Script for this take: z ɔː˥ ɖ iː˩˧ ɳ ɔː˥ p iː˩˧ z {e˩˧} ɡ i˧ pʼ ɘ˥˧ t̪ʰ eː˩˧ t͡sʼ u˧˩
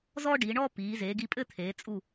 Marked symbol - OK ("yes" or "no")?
yes